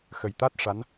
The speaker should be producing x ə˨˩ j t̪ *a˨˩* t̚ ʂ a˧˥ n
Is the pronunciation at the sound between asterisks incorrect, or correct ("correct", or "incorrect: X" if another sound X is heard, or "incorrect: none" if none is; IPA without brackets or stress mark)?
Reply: incorrect: a˦˥